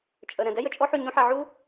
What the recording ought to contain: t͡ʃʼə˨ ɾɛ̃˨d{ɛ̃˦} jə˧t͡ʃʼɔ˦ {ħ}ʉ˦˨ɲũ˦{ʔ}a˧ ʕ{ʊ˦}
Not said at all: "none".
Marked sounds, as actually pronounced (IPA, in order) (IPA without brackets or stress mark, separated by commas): ɛ˦, ħ, ħ, u˦